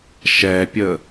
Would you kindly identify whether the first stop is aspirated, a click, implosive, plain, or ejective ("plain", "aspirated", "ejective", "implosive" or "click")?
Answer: plain